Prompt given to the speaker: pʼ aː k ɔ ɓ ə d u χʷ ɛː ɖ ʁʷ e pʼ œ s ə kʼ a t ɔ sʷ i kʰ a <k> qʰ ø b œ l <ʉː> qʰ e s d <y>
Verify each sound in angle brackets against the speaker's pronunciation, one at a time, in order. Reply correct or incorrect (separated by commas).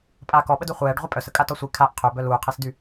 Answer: incorrect, incorrect, correct